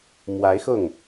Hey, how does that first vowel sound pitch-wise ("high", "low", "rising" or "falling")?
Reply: rising